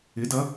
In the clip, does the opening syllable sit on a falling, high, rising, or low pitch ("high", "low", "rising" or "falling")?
rising